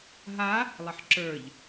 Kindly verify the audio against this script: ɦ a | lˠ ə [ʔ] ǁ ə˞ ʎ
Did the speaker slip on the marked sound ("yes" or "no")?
yes